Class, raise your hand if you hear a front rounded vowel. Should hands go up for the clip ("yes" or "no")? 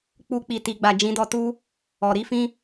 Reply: no